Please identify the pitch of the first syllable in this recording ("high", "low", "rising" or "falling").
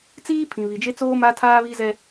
high